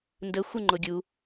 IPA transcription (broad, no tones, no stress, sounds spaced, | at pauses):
n d ə xʷ ə ŋ͡ǃ o ɡʲ u